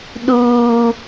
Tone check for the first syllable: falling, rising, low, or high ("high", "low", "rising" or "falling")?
high